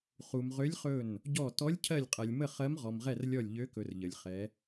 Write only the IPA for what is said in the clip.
χ u˩ m ʁ ø˨˦ lʲ χ ɵ˧˩ n | ɟ ɔ˧˩ t ɔ˨˦ lʲ cʰ ɜ˧˩ lʲ qʼ ɜ˩ lʲ m ə˧˩ χ ɜ˨˦ m ʁ ɔ˩ m ʁ ɛ˧˩ r lʲ ɔ˧˩ lʲ ʎ ø˨˦ k ɵ˩ r ʎ ə˩ lʲ χ ɛ˨˦

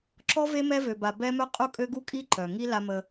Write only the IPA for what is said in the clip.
ǁ ɔ˦ v e˦ m ɛ˦ v ø˨ b a˨ b ɛ˦ m œ˦ qʼ u˦ kʼ ø˦ ɡ u˦ kʼ i˦ ǃ œ˨ ŋ i˦ l a˦ m ə˦

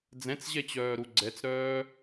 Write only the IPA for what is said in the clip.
d͡z ɛ̃ t͡s ʑ ɛ t͡ɕ œː ɾ u ɡ͡ǀ ɛ t͡s ɾ œː

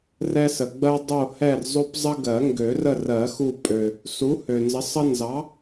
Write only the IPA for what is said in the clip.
r ɛ˦ s ə˨ ɡ͡b ɜ˦ dˤ o˦˨ h ɛ˦˨ r zˤ o˦ p zˤ ə˦ ɡ ɜ˨˩˦ ŋ ɡ ø˨˩˦ r ə˦˨ r ɜ˨˩˦ x u˦˨ pʼ ø˨ | s u˨˥ h ø˨ n z ə˨˥ sˤ ə˦ n z ɑ˨˥

